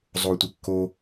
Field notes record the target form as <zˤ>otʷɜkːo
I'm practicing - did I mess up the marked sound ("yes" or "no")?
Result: no